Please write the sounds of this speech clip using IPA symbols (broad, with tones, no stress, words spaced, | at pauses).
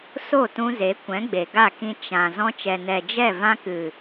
so˦˨tũ˧ze˨˦ kʷɛ̃˨˦ɡ͡be˨ɡa˦˨kĩ˧ t͡ʃã˨ zɔ̃˧t͡ʃɛ˨ nɛ˨d͡ʒɛ˦˨ vã˧kɨ˨